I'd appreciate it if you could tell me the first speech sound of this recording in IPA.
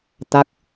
t̪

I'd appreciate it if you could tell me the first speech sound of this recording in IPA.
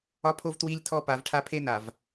ɒ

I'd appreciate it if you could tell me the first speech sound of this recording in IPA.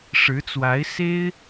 ʂ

